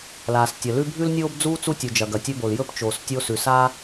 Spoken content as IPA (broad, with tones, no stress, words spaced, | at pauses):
laː˩stʲɐ˩lʉ˥ bʱʉ˥lnʲoː˥bd͡zuː˥ t͡su˥tʲu˩ d͡ʒɐ˩ɡɐ˩tʲɵ˥bo˩l jɵ˥pt͡ʃoː˩s tʲo˥ sʉ˩ saː˥